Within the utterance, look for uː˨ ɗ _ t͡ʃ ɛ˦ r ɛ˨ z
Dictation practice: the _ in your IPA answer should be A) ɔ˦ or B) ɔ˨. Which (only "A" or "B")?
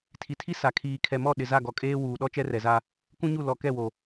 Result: A